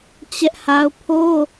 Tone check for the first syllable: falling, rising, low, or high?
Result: high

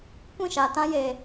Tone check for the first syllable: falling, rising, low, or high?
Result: falling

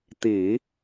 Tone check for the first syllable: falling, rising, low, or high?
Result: low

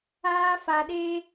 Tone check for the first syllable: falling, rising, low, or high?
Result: high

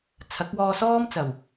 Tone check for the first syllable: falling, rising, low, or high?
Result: rising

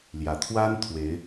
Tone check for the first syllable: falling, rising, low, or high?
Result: low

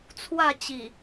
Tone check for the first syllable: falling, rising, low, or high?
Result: falling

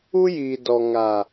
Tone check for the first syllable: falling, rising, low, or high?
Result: high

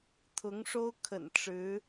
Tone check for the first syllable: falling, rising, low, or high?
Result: rising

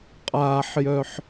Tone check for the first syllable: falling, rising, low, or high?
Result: low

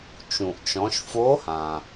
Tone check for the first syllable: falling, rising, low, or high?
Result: low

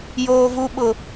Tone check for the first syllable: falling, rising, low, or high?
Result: high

